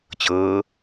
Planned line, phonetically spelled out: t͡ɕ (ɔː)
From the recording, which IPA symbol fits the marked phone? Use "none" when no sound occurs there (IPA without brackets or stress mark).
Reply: ɤː